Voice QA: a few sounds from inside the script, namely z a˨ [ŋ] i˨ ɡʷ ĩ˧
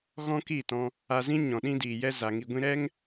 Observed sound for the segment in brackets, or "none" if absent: ŋ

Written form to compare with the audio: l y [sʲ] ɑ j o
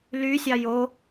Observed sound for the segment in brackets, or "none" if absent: sʲ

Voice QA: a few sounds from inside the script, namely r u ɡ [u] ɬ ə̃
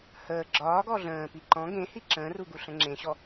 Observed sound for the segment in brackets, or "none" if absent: u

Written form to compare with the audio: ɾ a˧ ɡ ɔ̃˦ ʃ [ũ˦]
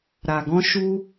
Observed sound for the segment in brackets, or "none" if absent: u˦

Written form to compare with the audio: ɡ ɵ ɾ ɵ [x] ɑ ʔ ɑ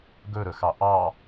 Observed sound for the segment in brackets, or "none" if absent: x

